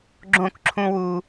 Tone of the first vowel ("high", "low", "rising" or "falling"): falling